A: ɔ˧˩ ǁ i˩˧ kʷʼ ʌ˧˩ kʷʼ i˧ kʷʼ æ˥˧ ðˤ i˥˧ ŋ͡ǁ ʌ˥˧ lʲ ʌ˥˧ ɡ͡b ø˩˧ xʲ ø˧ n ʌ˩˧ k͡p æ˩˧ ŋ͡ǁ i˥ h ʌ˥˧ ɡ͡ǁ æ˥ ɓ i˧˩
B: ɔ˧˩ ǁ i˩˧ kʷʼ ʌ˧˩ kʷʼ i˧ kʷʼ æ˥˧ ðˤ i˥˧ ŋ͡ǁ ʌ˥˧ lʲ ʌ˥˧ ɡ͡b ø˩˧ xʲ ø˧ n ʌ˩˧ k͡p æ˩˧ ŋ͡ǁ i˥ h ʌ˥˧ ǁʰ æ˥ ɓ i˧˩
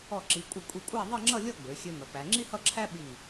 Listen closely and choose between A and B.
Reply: B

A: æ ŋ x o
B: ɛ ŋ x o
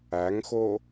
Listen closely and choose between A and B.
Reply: A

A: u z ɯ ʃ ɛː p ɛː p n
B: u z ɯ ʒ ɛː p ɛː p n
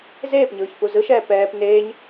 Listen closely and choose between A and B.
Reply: A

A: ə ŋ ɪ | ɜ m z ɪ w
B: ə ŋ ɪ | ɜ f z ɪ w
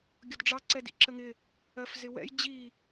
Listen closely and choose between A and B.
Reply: B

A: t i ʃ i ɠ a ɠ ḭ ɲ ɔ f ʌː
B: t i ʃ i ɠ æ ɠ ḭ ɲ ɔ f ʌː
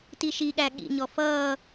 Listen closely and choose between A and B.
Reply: B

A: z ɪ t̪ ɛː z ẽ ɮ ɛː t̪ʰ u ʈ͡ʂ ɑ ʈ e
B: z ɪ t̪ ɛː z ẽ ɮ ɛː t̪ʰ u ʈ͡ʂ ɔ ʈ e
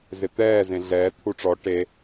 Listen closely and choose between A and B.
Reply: B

